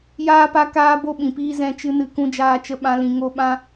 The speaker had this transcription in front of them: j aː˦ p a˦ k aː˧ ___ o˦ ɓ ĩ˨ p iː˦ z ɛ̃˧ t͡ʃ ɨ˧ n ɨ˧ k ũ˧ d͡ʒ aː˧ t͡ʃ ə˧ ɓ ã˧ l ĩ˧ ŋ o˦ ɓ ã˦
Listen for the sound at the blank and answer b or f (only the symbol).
b